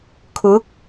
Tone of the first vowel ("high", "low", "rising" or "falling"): rising